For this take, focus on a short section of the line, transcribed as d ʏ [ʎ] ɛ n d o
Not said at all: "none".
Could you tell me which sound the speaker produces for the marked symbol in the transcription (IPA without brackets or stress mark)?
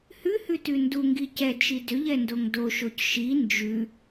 ʎ